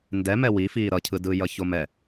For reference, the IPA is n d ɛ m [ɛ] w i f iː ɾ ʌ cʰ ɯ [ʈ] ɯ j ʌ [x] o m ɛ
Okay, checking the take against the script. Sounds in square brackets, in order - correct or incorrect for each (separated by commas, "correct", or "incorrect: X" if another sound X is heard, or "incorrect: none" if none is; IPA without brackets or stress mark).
correct, incorrect: d, incorrect: ç